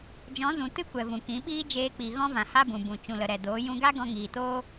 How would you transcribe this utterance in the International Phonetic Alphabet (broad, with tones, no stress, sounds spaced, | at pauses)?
d͡ʒ ɔ̃˨˦ z ũ˨ t ɨ˦ kʷ ɛ˨ v ũ˨ k ĩ˨˦ ɓ iː˦ d͡ʒ eː˧ k͡p i˨ ɣ ɔ̃˦ v ã˨ h a˦ b ũ˨ b ũ˨ t͡ʃ ũ˨ l ə˨ ɾ ɛ˨ d oː˨˦ j ũ˧ ɡ a˦ ɡ ɔ̃˧ ŋ iː˨ t oː˦